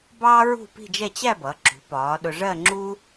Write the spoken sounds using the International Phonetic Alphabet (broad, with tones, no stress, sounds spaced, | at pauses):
b ɑː˥ ɹ ṳ˥˧ p i̤˥˧ d͡ʒ ɛ˥˧ t͡ɕ æ˥˧ b ʌ˩˧ ǁ ṳ˩˧ p ɒː˩˧ ɗ ʊ˧ ʐ ɜ˥˧ ŋ͡ǁ uː˥